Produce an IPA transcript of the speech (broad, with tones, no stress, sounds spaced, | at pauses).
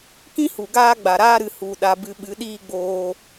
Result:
k ĩ˦ h u˨ ɡ aː˦ ɡ͡b a˨ ɾ aː˦ ɾ ɨ˨ h u˨ ɗ a˨ b ɨ˧ ɓ ɨ˨˦ ɗ iː˦ ɡ͡b oː˧